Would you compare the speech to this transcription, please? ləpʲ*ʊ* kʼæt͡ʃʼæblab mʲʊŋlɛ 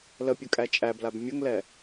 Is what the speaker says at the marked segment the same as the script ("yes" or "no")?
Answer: no